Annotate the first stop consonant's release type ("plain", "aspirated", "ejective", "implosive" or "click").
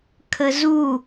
aspirated